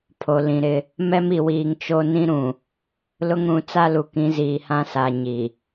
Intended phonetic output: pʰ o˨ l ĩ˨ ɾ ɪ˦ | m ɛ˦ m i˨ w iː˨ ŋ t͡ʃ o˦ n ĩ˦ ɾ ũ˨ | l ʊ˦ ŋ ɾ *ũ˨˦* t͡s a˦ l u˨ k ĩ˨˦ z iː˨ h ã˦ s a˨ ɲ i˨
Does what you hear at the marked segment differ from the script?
no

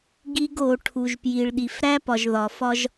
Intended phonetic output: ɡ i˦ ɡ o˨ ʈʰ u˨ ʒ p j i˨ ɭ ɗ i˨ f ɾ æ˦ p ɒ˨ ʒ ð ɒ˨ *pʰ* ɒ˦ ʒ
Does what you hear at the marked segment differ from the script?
yes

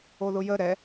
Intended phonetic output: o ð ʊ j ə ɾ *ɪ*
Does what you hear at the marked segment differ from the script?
yes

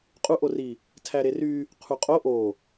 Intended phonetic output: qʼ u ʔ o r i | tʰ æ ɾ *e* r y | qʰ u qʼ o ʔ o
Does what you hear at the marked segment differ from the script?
no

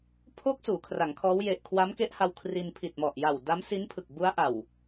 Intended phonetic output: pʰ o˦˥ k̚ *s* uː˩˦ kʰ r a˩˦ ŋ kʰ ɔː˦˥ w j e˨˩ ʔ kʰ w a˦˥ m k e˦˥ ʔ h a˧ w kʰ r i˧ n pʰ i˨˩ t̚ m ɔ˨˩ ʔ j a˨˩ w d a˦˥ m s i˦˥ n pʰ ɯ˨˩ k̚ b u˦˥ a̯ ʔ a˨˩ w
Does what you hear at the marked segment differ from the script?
no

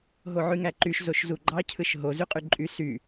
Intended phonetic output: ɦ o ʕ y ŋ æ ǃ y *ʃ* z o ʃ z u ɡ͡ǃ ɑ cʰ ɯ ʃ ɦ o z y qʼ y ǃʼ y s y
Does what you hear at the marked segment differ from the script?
no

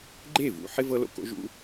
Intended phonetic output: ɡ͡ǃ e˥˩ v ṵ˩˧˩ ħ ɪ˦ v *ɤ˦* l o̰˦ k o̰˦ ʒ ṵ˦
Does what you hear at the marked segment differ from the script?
no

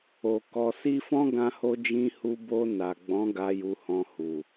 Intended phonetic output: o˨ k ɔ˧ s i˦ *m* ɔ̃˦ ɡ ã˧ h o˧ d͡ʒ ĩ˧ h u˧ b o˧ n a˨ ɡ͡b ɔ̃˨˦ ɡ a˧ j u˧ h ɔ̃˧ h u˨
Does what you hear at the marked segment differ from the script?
yes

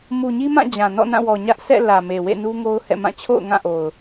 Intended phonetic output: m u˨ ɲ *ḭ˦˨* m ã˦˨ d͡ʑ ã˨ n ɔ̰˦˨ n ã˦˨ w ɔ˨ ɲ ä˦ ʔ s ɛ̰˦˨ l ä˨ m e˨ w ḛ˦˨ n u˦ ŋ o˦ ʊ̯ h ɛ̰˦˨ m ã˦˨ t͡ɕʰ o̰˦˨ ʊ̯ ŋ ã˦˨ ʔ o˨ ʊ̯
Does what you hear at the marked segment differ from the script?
yes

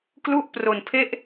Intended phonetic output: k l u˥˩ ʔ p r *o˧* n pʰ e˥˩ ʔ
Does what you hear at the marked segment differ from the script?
no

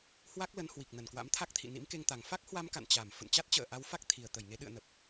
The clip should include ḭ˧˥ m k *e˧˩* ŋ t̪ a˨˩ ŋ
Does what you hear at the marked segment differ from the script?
yes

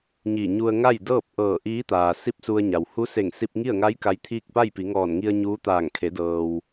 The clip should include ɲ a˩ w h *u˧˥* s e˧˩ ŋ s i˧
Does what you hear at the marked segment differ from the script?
no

